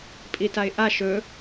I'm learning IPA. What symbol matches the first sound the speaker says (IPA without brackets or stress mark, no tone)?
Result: pʼ